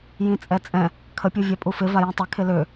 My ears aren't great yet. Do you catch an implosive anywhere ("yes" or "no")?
no